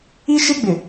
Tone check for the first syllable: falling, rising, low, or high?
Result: high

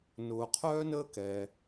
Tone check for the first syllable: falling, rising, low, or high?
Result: low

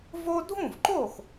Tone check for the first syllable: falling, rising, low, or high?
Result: high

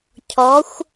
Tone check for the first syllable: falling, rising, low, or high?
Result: rising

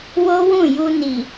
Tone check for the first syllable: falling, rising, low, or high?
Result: high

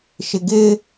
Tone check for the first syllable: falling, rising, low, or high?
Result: low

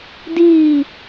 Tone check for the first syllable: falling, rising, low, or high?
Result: falling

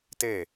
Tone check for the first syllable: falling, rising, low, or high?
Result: falling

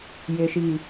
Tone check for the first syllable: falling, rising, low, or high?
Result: low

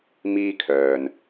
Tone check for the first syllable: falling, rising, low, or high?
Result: high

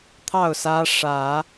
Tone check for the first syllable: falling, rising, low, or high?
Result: falling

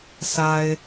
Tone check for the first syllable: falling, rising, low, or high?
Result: low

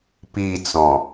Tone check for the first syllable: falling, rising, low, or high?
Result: falling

